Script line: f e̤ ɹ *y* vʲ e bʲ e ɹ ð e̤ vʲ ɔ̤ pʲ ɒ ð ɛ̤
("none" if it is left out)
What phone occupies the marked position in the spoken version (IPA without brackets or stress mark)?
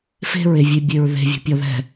e